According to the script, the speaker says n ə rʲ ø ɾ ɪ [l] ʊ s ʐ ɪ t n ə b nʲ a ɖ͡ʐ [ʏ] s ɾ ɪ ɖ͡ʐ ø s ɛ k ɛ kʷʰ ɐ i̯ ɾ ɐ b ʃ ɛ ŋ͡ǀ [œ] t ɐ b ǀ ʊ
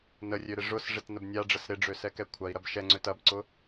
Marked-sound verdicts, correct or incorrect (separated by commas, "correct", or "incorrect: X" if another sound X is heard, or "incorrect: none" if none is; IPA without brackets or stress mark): incorrect: ʐ, incorrect: ə, incorrect: ø